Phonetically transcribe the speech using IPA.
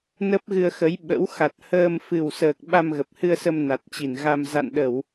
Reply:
n ə˦˥ p̚ ɣ ɨ˧ ə̯ x ə˨˦ j ɓ ə̰˧˥ w x a˨˩ t̚ h əː˧ m f ɨ˨˩ w s əː˨˩ k̚ ɓ a˧ m ɣ ə˨˩ p̚ h ɨ˧ ə̯ s ə˧ m n a˨˩ t̚ t͡ɕ i˧˩ n ɣ a˧ m z a̰˧˨ n ɗ ə˧˩˨ w

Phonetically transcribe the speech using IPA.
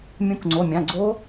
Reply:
mʲ ũ˨˥ k ŋ͡ǀ o˩˧˩ mʲ ã˩˧˩ ɡ͡ǀ o˦˥

